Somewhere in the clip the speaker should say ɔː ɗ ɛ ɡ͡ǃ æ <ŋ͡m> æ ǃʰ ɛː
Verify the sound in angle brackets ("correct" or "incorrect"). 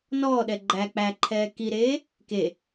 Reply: incorrect